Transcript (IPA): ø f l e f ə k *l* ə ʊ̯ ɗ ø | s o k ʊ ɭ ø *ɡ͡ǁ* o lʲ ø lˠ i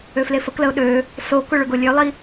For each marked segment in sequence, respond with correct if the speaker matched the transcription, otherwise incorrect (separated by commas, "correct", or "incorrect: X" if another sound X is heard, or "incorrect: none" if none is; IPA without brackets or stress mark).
correct, incorrect: ɡ